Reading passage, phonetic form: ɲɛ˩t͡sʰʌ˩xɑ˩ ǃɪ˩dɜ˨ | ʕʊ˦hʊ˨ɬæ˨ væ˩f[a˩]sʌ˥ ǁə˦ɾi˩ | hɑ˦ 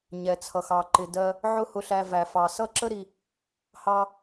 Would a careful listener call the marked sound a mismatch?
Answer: yes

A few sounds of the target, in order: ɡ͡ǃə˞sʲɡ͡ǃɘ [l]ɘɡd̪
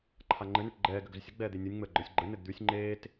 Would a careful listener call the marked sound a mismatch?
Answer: yes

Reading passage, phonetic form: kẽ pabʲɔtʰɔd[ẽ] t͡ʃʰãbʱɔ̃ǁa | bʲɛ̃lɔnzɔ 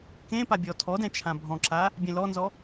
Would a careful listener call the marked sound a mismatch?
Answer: yes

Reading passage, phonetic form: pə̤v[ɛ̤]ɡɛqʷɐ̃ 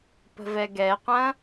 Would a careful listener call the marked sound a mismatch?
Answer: yes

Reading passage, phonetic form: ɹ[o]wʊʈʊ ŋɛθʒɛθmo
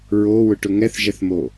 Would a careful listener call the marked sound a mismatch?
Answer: no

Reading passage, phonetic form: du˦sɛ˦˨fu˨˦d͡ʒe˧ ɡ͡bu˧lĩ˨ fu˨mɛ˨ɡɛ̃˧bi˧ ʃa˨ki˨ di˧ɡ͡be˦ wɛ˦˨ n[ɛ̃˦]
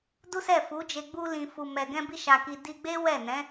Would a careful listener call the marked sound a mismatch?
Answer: yes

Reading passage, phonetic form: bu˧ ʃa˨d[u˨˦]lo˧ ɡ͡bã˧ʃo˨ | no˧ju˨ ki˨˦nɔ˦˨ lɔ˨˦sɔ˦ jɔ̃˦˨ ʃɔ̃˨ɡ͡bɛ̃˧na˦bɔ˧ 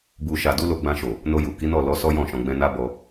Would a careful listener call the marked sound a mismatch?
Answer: no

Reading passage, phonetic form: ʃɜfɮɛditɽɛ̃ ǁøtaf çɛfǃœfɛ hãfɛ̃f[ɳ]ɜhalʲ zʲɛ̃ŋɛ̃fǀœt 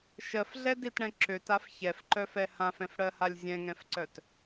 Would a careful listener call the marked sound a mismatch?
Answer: yes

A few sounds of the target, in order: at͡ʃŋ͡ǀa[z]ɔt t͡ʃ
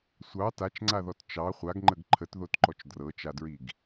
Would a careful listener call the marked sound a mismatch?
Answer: yes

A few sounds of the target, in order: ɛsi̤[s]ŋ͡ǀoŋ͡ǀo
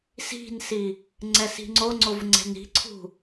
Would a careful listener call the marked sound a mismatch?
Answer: yes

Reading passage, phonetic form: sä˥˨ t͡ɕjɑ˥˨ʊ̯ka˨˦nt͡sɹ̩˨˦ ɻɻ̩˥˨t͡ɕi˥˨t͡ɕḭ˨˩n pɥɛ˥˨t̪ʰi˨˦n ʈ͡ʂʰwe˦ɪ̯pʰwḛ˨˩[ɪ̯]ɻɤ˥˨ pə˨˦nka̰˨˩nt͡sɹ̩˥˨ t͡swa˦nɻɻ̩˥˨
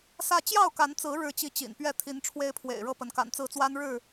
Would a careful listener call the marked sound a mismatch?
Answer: no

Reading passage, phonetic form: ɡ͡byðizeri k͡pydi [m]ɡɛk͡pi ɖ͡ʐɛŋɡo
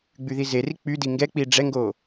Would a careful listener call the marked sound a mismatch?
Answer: yes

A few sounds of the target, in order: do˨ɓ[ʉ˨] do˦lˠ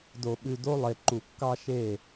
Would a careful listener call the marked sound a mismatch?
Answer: no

